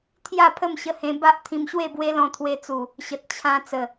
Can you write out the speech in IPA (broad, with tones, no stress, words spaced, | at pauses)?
t̪ʰja˥˧pʰə˥˧mɕə˧hẽ˧ ba˦ʔt̪ʰĩ˧mɕwe˥˧bwe˦ lɔ̃˧t̪ʰwe˧t͡su˨˩ | ɕə˨t̚ t͡ɕʰã˧ t͡sə˨˩